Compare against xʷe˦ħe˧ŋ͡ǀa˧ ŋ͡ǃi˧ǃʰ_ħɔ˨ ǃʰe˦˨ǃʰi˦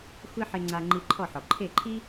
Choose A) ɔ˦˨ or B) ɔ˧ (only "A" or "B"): A